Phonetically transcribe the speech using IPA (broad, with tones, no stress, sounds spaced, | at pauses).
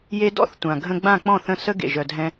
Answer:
j e˧ d ɔ̰˥˩ θ tʷ ã˩ ɡʱ ə̃˧ ɡ͡b ã˥˩ k͡p ɔ̃˥˩ θ ə̃˥˩ s ə˥ ɡ ḛ˩ ʒ œ˩ dʱ ɛ̃˧